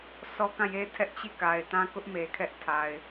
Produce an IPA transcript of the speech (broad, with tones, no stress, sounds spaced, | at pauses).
s ɔ˦ k ã˦˨ j e˦ tʰ ɛ˦ ʔ t͡ɕ i˦˨ k a˨ ɪ̯ t ã˦ k ʊ˦ ʔ m e˨ kʰ ɛ˦ ʔ tʰ a˨ ɪ̯